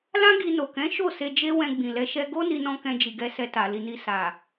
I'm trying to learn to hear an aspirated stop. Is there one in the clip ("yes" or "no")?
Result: no